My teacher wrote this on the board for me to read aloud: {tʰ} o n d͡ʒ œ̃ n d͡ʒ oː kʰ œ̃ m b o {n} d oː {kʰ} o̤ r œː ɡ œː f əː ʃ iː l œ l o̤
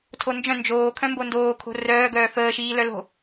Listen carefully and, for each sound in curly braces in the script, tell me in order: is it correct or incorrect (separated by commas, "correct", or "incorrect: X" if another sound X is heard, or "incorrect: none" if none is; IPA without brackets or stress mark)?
correct, correct, correct